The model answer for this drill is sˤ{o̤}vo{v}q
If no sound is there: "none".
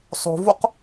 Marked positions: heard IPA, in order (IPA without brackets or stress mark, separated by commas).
o̤, none